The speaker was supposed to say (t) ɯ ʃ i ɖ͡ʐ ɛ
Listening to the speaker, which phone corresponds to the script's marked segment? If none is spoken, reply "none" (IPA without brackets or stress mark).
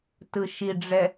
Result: t